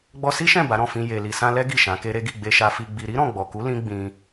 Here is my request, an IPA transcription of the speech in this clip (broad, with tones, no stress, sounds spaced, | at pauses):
ɡ͡b ɔ˧ s i˦ ʃ ɛ̃˦˨ b a˨˦ ɾ ɔ̃˦˨ f ĩ˧ j e˨ l i˨ s ã˧ l ɛ˦ ɡ i˦˨ ʃ ã˨˦ k e˦ ɾ e˦ ɡ i˦˨ ɡ͡b e˧ ʃ a˧ f i˧ ɡ͡b i˧ ɾ i˦ ɾ ɔ̃˦˨ ɡ͡b ɔ˨ k u˨˦ l ĩ˦ ɡ͡b ĩ˧